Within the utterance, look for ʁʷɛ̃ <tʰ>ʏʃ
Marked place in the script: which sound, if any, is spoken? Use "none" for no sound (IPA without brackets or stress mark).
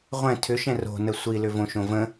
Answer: tʰ